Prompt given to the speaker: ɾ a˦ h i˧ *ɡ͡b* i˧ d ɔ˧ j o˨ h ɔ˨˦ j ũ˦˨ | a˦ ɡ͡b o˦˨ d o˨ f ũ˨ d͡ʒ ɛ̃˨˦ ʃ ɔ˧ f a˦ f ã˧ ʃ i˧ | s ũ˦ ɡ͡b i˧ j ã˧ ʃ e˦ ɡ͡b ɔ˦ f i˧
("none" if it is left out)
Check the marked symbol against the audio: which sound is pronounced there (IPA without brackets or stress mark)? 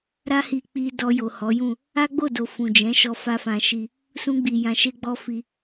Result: k͡p